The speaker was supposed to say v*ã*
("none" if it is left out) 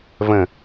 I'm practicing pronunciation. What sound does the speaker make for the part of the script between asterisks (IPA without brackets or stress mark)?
ə̃